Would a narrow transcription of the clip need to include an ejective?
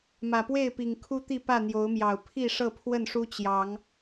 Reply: no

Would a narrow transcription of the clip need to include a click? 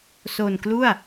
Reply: no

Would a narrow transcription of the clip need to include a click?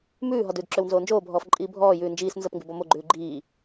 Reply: yes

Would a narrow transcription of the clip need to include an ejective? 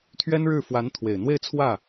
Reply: no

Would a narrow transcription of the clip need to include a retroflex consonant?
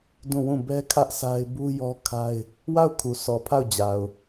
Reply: no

